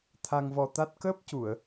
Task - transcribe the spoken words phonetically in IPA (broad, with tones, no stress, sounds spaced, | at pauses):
t̪ʰ a˧ ŋ v ɔ˧ t̪ a˦˥ t̚ k əː˦˥ p̚ c u˨˩˨ ə̯